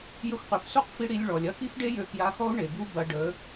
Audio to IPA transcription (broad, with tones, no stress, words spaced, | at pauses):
jə˧xʷqy˨fsu˦˨qfi˧ ɽi˧lʲɭɔ˨lʲɐ˦ ki˦fɖe˦jø˧ kja˧xɔ˦u̯ ɳe˨bu˦ bɐ˧ ɖə˨˦